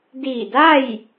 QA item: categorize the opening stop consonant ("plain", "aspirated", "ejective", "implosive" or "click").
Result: plain